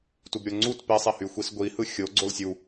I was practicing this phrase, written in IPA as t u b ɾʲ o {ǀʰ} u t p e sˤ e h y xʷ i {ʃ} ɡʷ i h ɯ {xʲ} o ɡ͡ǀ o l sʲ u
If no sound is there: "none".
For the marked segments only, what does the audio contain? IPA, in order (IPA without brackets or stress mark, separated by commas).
ŋ͡ǀ, s, xʲ